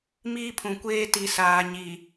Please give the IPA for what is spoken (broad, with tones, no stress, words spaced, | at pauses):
miː˦pʰũ˨kʷeː˦ ti˨saː˨ɲi˨